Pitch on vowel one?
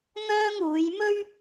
high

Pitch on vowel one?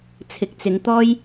rising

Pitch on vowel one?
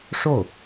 falling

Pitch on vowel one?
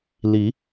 rising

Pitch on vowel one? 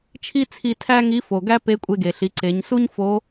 high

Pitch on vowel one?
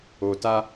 low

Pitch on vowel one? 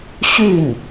falling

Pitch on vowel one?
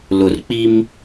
low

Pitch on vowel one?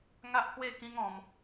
high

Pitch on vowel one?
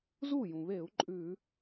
falling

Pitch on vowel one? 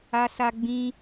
high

